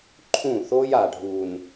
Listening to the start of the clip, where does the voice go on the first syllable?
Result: falling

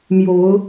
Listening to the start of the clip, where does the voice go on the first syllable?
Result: rising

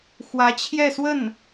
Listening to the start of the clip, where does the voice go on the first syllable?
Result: rising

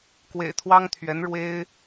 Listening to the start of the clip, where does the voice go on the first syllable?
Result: low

